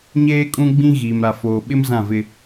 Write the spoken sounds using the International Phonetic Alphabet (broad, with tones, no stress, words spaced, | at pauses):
ɲeː˦kʼũ˦ɡ͡bĩ˦ ɣiː˨m ɾa˨foː˨ɓɪ˦m zã˦˨vɪ˦